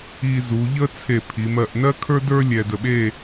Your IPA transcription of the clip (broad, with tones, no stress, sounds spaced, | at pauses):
i˧ z u˩˧ ʎ ə˥ t͡sʰ e˧˩ pʰ i˩˧ m ɜ˧˩ ʔ n ɜ˥ kʰ ə˞˥ d ə˞˥ lʲ ɛ˧ d ə˧˩ ɓ e˥˧